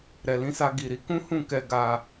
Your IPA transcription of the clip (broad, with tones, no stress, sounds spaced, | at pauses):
ɾ ɛ˨ l ĩ˧ s a˧ ɡ i˨ ɾ i˨˦ k ũ˦ h ũ˦˨ k ɛ˧ ɡ a˧